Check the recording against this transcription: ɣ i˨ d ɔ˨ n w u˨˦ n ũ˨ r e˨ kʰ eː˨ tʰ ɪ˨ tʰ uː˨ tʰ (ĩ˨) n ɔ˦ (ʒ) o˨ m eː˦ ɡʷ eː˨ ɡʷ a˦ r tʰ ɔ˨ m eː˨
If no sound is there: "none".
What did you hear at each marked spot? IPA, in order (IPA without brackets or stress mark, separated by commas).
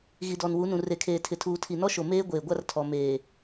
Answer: i˨, ʃ